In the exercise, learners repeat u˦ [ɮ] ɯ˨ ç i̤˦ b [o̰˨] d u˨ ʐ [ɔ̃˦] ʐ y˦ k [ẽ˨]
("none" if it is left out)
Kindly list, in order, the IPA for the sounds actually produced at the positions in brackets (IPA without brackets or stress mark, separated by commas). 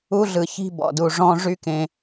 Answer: ɮ, ɔ̰˨, ɔ̃˦, ẽ˨